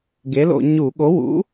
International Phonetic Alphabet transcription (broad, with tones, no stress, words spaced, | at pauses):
ɡe˨˥lo̰˧˩˧ ɲu˧˩˧ ɠo˨˥wṵ˨˥